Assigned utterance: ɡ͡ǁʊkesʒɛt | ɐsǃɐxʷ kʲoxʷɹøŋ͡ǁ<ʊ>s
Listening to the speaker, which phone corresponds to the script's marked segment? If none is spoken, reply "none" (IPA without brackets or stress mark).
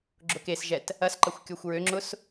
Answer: ʊ